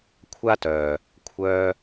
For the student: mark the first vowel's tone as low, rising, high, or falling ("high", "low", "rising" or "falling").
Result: high